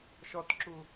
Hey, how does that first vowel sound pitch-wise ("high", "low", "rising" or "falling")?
high